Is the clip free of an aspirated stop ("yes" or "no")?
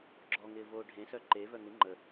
yes